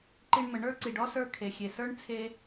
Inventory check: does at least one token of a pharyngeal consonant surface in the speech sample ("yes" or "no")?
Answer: no